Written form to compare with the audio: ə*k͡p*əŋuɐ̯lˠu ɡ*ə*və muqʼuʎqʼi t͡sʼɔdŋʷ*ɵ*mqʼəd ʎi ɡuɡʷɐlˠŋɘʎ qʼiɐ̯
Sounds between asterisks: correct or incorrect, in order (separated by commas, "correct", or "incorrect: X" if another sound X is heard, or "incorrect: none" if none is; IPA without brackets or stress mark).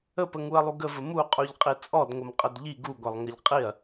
incorrect: p, correct, incorrect: ə